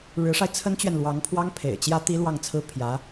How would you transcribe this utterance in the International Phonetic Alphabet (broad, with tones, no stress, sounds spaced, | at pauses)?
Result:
ɻ ɻ̩˧˥ ʂ a˧ ɪ̯ t͡sʰ ə˥ n t͡ɕ ɥ ɛ˨ n l w ɑ˧˥ ŋ pʰ w ɑ˥ ŋ pʰ ḛ˨˩ ɪ̯ t͡ɕ j ä˥ t̪ i˥ l w ɑ˥˩ ŋ t͡sʰ ɹ̩˥ pʰ j ä˧˥